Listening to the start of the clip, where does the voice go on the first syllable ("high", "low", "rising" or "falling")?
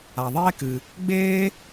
low